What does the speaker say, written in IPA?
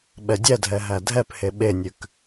ɓ ɛ dʲ ɛ dʱ ɛ ɦ æ dʱ ɛ p h e ɓ e nʲ ʉ k

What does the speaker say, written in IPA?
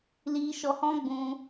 l i˦ ʃ ɔ˧ h ɔ̃˦ ɡ͡b ũ˧

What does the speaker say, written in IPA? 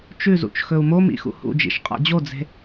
t͡ʃ ʉ z ṵ t͡ʃ x ɵ u̯ m o m ḭ x ṵ h ṵ d͡ʒ ḭ ʃ qʼ a̰ d͡ʑ o d͡z e̤

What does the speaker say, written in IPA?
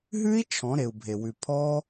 ɦ ʉ˦˥ i̯ t͡ʃʰ ɔ̃˩˧ ɾ e˩ u̯ bʱ e˩ w ʉ˩ pʰ ɔ˦˥

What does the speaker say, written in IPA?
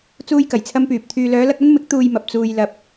t͡s uː˥ j k ɐ˨˩ j t͡sʰ ɐ˥ m p yː˨ p̚ t̪ʰ yː˨ l œː˨˧ l ɐ˧ k̚ ɐ˥ n m ɪ˨˥ k̚ t̪ uː˧ j m ɐ˨ p̚ t͡s uː˨ j l ɐ˨ p̚

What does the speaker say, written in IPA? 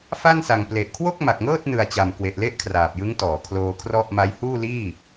f a˥˩ n s a˨˩ ŋ p l e˨˩ ʔ kʰ w o˥˩ k̚ m a˨˩ k̚ ŋ ɤː˥˩ t̚ n ɯ˨˩ a̯ t͡ɕ a˨˩ m k w e˨˩ ʔ l e˥˩ ʔ kʰ r aː˨˩ p̚ j ɯ˦˥ ŋ t ɔː˩˦ kʰ l oː˧ kʰ r ɔ˥˩ ʔ m a˦˥ j h uː˥˩ l iː˥˩

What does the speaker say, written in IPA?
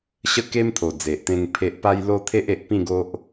ɕ ə˦ k e˦ m t̪ʰ o˨˩ d͡z e˨ ʔ t̪ ẽ˧ ŋ pʰ e˨ ʔ p a˧ j l o˧ t̪ʰ e˦ ʔ e˨ ʔ p ĩ˥˧ ɡ o˦ ʔ

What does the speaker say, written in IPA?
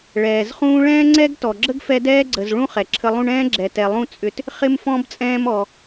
ɭ ɛː˨ z χ ũː˦ ɭ ɛ̃ː˥ ŋ͡ǀ ɛ˥ ɡ t ɔ˨ ɡ͡ǁ ə˥ ɡ f ɛ˦ d ɛː˦ ɡ͡ǀ ə˨ z ɭ ũ˦ χ ɛ˨ ǁʰ ə˦ lˠ ũ˥ ɳ ɛ̃ː˥ ɡ͡ǁ ɛ˨ t ɛ˨ lˠ ũ˥ t͡sʼ ʏ˦ t | χ ɪ˦ m f ɔ̃˥ b t͡sʼ ɛ̃ː˦ m ɔ˨

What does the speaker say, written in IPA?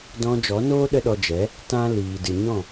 d ɔ̃˧ d͡ʒ ɔ˨˦ n oː˦ ɗ ə˦ ɗ ɔ˧ d͡ʒ ɛ˨˦ | t ã˦ l iː˨ d ɨ˨ ɲ ɔ̃˦˨

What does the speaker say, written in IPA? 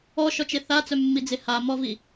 ɔ ʃ ɔ t͡ʃ e θ a t͡s œ mː i d͡z e h a m ɔ v i

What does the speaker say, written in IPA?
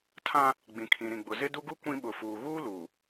tʰ ã˦ | ɡ͡b ĩ˨ kʰ ĩ˨ ɾ ĩ˨ ɡ͡b ʊ˨ z ɪ˦ d u˦ ɡ u˦ kʷ ĩ˦ ɓ ʊ˨ f uː˨ ɣ uː˦ l uː˨

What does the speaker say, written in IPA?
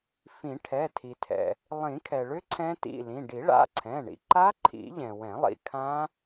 f ĩ˨˩˦ ʈʰ ɛ˩˧˩ tʰ i˩ tʰ ɛ̰˩ | lˠ ĩ˨˩˦ kʰ ɛ˩ ɭ ʏ˦˥ ǀʰ ɛ̃˦˥ t ḭ˩˧˩ l ĩ˩˧˩ ɖ i˨˩˦ ɭ a̰˩˧˩ ǀʰ ɛ̃˩˧˩ ɳ ḭ˩ ǃ a˦˥ ǃʰ ḭ˨˩˦ ʎ ɛ̃˩ w ɛ̃˨˩˦ lˠ ḭ˩ kʰ ã˦˥

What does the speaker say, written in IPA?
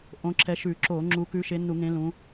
ʔ õ˨˦ ǁ ɛ˨˦ ʃ ʉ˧˩˧ ǁ o˧˩˧ ŋ͡ǁ u˨˦ k ʉ˨˦ ʃ e˨˦ nː u˧˩˧ ŋ ẽ˨˦ l ũ˨˦

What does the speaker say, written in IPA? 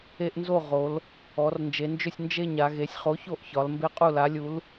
e˦ ʔ n z o˥˨ ʁ o˩˧ l | ɔ˩˧ r n d͡ʒ e˩˧ n d͡ʒ ʏ˥˨ sʲ n d͡ʒ e˥˨ ɲ a˩˧ ɣ e˩˧ sʲ χ o˨˥ ç o˥˨ ʔ ç ɒ˩˧ l m b e˦ qʼ u˥˨ l a˨˥ lʲ u˨˥ l

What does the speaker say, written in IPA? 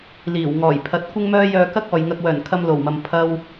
l iː˨˩ w ŋ ɔː˨˩ j pʰ ɐ˨˥ t̚ kʷ ɪ˥ ŋ m œː˥ j œː˧ k ɐ˥ k̚ ɔː˨ j ŋ ɐ˧ k̚ w œː˨˩ n kʰ ɐ˧ m l o˨˩ w m ɐ˨ m pʰ ɐ˧ w

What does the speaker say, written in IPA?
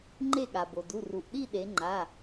ŋ͡ǃ e˦˨ ɠ a˩ b o˩ d u˩˧˩ r u˩ ʔ ɗ i˦˨ ɗ e˩˧ ŋ͡ǃ a˩˧˩

